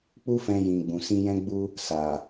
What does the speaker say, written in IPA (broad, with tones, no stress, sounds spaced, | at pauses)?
k͡p u˦ f ɛ̃˧ j ĩ˨ ɡ͡b ũ˨ s ĩ˧ j ɛ̃˦ ɡ͡b u˦ | s a˨